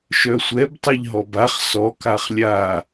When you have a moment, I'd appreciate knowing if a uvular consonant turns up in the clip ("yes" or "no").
yes